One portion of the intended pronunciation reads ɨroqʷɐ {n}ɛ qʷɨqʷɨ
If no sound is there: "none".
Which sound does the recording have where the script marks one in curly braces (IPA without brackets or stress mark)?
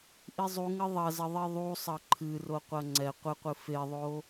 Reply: ŋ͡ǀ